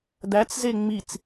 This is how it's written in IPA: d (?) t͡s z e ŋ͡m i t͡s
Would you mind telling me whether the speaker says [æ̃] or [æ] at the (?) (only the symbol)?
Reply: æ